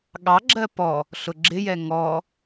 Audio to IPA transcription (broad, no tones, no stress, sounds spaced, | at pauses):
ɠ ɑ ɡ͡ǁ ɜ p ɔ | ɬ ʊ ɡ͡ǁ ɪ j ɛ ŋ ɔ